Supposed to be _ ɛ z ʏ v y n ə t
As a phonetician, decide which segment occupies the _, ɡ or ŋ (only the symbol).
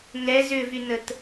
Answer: ŋ